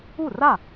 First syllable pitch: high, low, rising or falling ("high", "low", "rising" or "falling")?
falling